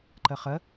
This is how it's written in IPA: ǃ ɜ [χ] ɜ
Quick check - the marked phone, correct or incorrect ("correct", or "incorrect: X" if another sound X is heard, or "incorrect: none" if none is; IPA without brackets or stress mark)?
correct